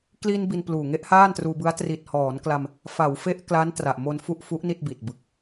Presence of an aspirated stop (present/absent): absent